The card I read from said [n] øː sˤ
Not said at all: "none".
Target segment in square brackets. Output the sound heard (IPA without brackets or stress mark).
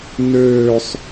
n